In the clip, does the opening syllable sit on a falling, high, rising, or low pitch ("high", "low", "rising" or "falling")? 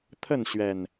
falling